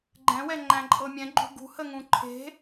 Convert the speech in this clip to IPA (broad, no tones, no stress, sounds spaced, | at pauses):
ɡ͡ǃ ɛ̃ w ɛ ŋ͡ǃ æ̃ ǃʼ ɤ mʲ ɛ̃ ɡ͡ǃ ṳ ɡ ṳ h ə ŋ ũ ǃʰ e̤